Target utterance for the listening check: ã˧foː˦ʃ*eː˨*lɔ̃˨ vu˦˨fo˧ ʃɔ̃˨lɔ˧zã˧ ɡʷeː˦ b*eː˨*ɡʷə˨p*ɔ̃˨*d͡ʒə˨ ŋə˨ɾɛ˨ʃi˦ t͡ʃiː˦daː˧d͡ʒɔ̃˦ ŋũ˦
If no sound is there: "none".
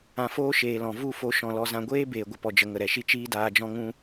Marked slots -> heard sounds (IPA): eː˨, eː˨, ɔ˨

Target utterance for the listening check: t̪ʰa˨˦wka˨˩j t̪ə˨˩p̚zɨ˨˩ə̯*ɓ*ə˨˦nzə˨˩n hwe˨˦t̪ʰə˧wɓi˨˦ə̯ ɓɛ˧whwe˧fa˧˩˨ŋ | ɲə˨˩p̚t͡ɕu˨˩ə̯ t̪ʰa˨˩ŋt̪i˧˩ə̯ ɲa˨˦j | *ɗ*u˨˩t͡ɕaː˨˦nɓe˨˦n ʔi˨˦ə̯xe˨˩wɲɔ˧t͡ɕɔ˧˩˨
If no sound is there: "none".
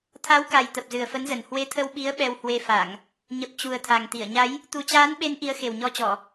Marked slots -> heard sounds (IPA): f, t̪

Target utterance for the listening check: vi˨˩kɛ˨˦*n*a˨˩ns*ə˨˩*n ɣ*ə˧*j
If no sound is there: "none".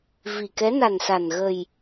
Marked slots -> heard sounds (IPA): n, a˨˩, ə˨˩

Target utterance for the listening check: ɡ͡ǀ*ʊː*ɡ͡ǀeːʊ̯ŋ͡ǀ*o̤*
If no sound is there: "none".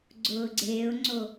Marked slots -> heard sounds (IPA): ʊː, o

